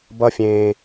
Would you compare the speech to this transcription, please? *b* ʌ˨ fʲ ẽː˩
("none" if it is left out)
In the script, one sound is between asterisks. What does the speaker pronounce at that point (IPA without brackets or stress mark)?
b